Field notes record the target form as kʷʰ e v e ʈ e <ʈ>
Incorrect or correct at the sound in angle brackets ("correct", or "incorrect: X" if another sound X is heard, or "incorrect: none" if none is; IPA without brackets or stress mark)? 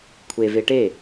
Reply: incorrect: none